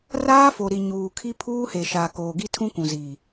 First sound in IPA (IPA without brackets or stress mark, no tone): r